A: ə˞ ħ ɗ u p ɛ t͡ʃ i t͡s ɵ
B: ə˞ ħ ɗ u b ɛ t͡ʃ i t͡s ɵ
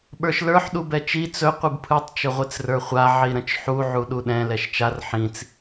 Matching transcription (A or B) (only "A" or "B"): B